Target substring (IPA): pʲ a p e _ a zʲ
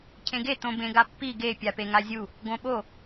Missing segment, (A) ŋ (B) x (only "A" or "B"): A